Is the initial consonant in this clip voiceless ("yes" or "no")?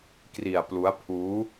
yes